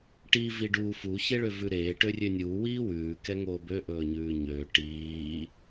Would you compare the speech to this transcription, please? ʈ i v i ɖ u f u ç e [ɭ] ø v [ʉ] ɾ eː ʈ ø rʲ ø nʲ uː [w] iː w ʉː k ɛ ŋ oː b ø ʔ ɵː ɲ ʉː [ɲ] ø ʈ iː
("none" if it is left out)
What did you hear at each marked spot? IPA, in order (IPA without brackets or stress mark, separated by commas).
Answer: ɭ, ʉ, w, ɲ